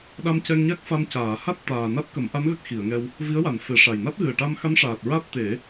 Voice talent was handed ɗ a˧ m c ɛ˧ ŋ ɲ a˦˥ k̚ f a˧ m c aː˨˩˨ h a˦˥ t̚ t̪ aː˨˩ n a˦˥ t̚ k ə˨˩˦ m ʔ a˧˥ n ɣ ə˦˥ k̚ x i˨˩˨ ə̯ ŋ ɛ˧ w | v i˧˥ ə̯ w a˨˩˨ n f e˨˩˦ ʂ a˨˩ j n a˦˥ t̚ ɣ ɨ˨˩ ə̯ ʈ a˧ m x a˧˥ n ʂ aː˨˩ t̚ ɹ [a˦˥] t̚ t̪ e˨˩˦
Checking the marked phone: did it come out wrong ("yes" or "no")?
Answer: no